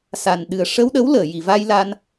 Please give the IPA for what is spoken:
sa˨˩n ɗɨ˨˩ə̯ ʂəː˧wɗə˧˥wləː˨˩˨ ji˨˩˨va˧j la˧n

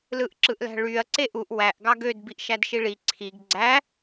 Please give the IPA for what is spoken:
lɯʔǁɯʔlæ̤ɭyɐ̯ ǀeʔuʔ wæʔ ɡɑɡød biʔʃædʃiɭi ǀʰiɡ ɡ͡ǀæ

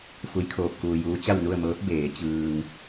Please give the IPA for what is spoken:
fu˧˥jkʰoː˧p̚kuː˧juː˧˥ t͡ɕa˥˨wnu˥˨ə̯mɤː˧˥p̚ beː˩˧ t͡ɕɯː˧ŋ

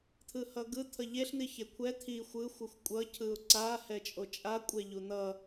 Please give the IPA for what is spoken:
t̪ʰɯhʌɡɯt̪ʰʌ ʎeɬn̪i çekʷʰɛ t̪ʰi xʷɯ xʷɯxʷkʷʼʌ cʰɯʊ̯ǀahɛt͡ʃʼo t͡ʃʼa kʷʼɛʎun̪ʌ

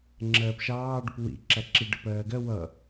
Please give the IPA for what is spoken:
ŋ͡ǁɜːpʃɑː ɖʊpwḭ ǁæǁi ɖəpɜːɡɜ wʌ

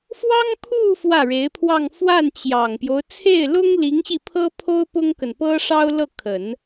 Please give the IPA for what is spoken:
fwɑ˥ŋpʰu˥˧ fwä˥˩ɻe˧˥ɪ̯pʰwɑ˥˧ŋ fwa˥˩nt͡ɕjɑ˨˩ŋpjo˦ʊ̯ t͡sʰe˥˩ɪ̯lʊ˥ŋli˧˥ŋ ɕi˥˩pʰɤ˥ pʰo˥ʊ̯pʊ˥ŋkə˨n pɤ˥ʂɑ˥ʊ̯lɤ˥˩ kʰə˨˩˦n

